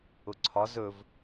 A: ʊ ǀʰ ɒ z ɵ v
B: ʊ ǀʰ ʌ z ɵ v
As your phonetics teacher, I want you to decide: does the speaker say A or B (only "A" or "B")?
A